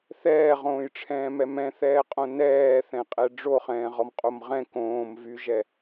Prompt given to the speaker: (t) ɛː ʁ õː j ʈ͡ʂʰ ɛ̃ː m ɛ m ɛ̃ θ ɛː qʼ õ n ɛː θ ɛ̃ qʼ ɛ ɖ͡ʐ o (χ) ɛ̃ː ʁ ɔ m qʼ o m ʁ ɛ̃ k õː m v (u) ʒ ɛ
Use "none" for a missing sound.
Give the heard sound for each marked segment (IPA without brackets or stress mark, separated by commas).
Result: θ, χ, y